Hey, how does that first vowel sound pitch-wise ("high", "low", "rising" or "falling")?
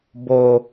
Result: low